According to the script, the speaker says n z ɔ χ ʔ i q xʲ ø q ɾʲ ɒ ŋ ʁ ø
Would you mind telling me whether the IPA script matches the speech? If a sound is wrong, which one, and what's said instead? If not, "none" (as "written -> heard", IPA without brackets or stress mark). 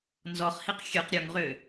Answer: ʔ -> h